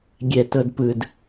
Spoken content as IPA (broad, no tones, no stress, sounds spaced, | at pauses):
ɡʲ ɛ t ɤ d p ɯ d